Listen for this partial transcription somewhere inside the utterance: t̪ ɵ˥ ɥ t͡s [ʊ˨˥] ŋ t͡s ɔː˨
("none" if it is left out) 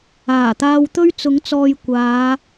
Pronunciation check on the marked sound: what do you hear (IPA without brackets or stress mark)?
ʊ˨˥